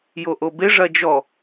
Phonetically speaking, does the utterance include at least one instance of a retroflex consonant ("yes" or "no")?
yes